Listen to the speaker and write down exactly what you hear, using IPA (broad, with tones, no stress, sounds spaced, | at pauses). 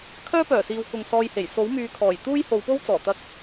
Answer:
kʰ œː˥ p œː˨˩ s iː˨ w k ʊ˨ ŋ s ɔː˧ j h e˨˩ j s o˨˥ w m yː˨˧ kʰ ɔː˨˩ j t̪ uː˥ j h o˨˧ w p o˥ w t͡s ɔː˨˩ t̪ ɐ˧ k̚